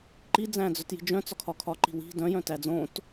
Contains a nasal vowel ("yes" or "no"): yes